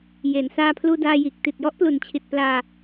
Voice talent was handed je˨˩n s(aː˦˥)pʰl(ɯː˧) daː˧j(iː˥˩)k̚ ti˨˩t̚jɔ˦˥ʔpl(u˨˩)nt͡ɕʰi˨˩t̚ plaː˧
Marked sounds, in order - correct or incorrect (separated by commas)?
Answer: incorrect, incorrect, incorrect, correct